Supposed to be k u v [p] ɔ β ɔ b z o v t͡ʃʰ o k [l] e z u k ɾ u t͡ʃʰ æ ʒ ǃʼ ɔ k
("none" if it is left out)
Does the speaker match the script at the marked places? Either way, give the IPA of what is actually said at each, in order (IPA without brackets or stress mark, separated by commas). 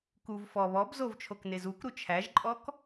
f, n